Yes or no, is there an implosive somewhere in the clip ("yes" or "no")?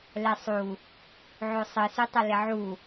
no